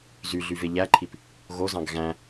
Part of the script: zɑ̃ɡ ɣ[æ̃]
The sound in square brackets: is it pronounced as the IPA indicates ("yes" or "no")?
yes